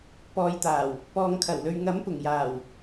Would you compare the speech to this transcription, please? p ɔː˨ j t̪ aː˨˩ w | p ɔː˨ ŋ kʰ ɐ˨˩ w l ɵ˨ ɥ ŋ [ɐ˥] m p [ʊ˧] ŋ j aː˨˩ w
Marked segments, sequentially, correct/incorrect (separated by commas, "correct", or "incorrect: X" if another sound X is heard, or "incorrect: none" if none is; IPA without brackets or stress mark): incorrect: ɐ˨˥, incorrect: ʊ˨˩